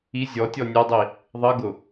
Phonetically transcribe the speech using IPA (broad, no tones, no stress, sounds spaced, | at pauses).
i zʲ ɔ tʲ ɔ nʲ ɛ dˤ i | ðˤ ʌ ɡ ʊ